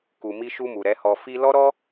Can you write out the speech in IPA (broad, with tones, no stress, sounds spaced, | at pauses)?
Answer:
k u˨ m i˧ ʃ u˧ m u˨ ɾ ɛ˨˦ h ɔ˧ f i˧ l ɔ˦ ɾ ɔ˦